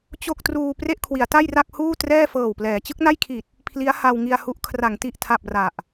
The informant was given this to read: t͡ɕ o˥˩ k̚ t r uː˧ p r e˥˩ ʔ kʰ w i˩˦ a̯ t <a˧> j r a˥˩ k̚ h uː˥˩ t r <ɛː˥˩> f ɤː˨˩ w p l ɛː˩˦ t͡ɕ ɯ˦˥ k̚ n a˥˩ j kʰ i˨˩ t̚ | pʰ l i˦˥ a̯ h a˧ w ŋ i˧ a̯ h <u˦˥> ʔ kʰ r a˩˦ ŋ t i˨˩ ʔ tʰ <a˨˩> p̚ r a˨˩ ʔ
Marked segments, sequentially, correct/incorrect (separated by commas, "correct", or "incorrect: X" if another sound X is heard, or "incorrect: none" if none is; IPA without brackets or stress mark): incorrect: a˥˩, correct, correct, correct